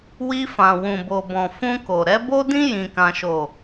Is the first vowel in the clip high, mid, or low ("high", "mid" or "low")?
high